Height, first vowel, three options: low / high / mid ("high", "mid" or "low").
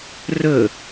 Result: mid